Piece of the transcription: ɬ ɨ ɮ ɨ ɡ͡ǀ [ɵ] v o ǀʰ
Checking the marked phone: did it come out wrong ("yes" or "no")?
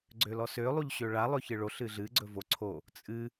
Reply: no